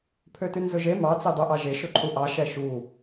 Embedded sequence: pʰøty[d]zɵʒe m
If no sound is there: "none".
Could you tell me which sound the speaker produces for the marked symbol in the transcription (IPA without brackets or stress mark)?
n